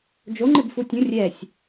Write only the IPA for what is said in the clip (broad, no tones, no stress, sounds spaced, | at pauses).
d͡ʒ o ŋ͡ǃ ɪ b f u tʲ ũ rʲ ɛ sʲ